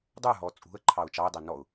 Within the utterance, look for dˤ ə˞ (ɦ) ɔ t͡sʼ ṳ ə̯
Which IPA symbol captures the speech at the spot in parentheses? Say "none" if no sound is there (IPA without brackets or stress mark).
ɦ